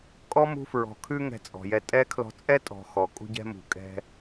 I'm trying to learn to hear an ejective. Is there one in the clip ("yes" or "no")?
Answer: yes